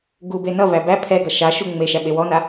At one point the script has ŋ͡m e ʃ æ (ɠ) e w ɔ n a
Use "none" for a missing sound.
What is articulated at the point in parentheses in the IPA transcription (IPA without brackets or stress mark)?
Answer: ɓ